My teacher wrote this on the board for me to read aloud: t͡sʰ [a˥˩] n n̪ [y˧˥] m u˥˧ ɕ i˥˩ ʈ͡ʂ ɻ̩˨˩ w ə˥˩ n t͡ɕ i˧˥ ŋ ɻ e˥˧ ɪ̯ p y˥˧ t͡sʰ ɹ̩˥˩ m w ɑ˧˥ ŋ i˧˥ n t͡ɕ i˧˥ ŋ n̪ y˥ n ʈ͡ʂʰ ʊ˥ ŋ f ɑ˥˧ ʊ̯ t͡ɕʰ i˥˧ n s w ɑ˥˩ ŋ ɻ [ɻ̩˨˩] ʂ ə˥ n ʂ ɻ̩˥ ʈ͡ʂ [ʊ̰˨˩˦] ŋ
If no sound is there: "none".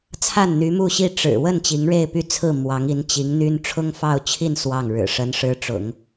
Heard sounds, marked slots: a˥˩, y˧˥, ɻ̩˨˩, ʊ̰˨˩˦

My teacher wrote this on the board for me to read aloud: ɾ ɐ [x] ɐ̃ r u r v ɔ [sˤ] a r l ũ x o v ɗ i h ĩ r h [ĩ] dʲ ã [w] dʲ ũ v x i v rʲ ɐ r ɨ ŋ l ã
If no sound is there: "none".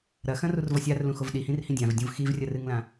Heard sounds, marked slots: x, sʲ, ĩ, v

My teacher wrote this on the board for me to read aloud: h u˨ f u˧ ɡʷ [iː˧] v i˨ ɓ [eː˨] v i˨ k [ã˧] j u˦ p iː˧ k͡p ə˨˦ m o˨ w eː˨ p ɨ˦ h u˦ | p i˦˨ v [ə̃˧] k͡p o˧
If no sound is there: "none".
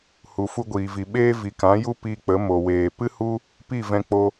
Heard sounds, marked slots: iː˨, eː˦, ã˨˦, ɛ̃˧

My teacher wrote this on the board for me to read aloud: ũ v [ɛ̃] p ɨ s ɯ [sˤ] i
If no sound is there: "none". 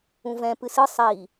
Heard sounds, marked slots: ɛ̃, sˤ

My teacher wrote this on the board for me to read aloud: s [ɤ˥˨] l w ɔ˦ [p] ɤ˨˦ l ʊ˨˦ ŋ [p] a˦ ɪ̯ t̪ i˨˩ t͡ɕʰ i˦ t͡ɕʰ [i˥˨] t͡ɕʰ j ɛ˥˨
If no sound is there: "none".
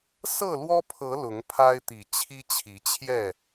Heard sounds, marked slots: ɤ˥˨, pʰ, pʰ, i˨˦

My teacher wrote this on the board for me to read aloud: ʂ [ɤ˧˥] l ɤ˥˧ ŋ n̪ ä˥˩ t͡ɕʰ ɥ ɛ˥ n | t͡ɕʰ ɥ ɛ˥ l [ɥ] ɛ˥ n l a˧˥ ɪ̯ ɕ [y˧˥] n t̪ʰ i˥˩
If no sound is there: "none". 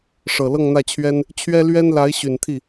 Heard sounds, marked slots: ɤ˨˩, ɥ, y˨˩

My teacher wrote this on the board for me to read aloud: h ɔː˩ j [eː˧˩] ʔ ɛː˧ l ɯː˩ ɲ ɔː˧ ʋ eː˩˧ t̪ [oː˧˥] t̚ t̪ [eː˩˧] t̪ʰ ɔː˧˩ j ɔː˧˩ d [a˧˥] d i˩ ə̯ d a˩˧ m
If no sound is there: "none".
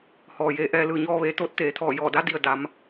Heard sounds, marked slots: eː˧, oː˧˥, eː˩˧, a˧˥

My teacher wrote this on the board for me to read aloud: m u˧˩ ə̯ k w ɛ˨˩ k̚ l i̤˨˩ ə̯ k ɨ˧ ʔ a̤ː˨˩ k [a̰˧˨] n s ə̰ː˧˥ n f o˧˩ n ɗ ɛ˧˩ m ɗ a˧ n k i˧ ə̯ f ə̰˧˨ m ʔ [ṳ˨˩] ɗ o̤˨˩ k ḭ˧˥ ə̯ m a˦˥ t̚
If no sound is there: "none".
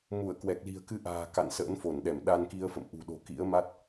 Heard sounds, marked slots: a̰˧˨, ṳ˨˩

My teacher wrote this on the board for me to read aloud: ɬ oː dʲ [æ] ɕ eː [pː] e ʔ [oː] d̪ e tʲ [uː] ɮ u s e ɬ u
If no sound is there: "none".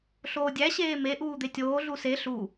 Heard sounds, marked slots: æ, m, uː, oː

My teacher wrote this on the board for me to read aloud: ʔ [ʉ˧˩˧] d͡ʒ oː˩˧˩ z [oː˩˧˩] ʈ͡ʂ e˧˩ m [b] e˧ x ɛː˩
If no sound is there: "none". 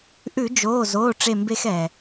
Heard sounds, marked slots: ʉ˧˩˧, oː˩˧˩, b

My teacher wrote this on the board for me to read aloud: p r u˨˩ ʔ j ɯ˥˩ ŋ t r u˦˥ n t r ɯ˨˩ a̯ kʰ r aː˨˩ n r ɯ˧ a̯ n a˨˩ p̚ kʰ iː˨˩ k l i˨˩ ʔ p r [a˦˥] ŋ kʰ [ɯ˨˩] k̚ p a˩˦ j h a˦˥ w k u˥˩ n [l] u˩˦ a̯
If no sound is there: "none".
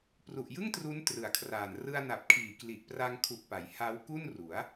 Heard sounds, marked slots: a˧, u˨˩, r

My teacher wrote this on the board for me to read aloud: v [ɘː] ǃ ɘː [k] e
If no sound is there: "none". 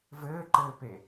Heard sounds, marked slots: ɘː, p

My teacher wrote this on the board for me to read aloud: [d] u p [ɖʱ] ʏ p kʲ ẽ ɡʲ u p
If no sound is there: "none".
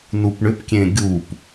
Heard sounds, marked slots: n, ɳ

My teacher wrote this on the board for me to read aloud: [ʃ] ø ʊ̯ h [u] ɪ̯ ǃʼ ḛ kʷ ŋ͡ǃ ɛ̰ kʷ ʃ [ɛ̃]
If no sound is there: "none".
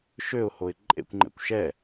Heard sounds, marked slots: ʃ, o, ɛ

